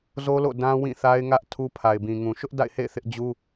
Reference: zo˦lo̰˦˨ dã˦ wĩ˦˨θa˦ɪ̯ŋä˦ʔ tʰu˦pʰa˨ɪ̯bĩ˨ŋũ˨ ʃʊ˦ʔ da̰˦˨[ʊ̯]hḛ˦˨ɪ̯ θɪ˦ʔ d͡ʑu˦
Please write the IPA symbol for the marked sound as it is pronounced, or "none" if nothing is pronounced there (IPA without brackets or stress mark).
ɪ̯